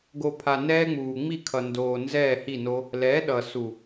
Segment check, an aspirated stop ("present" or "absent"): present